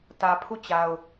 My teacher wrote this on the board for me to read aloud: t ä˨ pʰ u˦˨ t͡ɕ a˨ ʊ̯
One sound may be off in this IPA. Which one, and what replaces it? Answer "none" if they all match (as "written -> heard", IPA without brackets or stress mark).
none